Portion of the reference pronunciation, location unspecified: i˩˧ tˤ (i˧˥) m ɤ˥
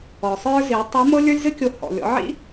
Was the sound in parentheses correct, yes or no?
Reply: yes